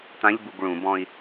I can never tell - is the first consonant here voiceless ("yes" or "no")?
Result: yes